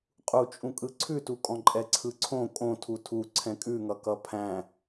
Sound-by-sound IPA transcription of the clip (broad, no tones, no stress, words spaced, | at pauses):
qʼut͡ʃʼũ kʼɯǀʰʉtukʼɔ̃ ǃʼɛǀʰɯǀʰõ kʼõtʰu tʰu ǀʰɛ̃kʼʉŋʌ kʌpʰæ̃